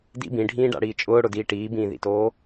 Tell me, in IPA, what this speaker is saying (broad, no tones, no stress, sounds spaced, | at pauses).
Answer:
d ḭ b ĩ ɖʱ ĩː ɖ a̰ ɽ iː t͡ʃʼ ʊː ɽ ʊ d iː ʈ iː b ĩː ð ḭ t oː